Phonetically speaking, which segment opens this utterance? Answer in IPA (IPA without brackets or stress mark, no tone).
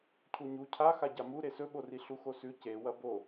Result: cʰ